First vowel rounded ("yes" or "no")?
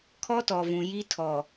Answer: yes